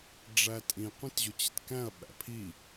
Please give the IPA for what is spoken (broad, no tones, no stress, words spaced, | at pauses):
ɖ͡ʐætʼĩ qʷĩtʑʊt͡ɕɪtkæ̃ɐ̯ ɓæ̰pʰi